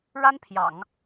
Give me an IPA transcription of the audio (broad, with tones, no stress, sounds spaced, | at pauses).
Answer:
ɻ a˥ n pʰ j ɑ̰˨˩˦ ŋ